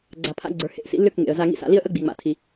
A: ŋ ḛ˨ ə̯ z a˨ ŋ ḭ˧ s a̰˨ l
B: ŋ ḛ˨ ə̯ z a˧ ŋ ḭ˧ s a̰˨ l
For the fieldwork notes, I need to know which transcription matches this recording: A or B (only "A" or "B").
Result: B